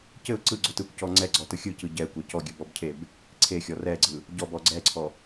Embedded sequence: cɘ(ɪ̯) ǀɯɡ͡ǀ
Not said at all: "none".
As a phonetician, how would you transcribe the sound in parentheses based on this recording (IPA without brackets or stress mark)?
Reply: ʊ̯